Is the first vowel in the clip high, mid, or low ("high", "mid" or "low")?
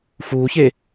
high